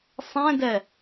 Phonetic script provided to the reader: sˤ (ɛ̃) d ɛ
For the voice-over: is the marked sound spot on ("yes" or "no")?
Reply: yes